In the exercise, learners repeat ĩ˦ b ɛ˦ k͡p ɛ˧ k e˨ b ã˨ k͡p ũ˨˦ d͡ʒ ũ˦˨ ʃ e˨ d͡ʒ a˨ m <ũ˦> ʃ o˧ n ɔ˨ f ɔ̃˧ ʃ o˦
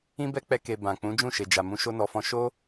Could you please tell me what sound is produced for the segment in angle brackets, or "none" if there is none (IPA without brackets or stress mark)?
ũ˧